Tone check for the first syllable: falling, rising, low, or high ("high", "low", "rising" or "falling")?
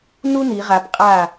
high